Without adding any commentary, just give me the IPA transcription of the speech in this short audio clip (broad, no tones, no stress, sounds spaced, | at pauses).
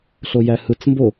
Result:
ɬ o j æ h ɯ t͡s m b o